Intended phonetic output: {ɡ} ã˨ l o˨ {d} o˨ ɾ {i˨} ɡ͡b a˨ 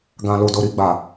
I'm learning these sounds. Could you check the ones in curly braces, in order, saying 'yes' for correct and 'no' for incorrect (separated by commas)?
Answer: yes, yes, yes